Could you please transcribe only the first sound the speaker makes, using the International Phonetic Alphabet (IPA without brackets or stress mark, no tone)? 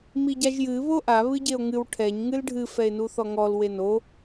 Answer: m